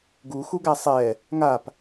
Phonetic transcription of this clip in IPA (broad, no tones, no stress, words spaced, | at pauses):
ɡuxuɡæ sˤɛ | ŋap